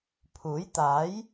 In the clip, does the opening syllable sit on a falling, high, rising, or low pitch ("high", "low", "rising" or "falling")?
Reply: rising